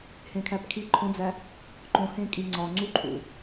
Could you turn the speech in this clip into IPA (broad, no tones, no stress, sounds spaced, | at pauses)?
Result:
h ẽ kʰ æ p kʰ i ǃʰ õ d͡z æ | ǃ õ h ẽ kʼ i ŋ͡ǀ ɒ ŋ͡ǀ u ǃʰ ṵ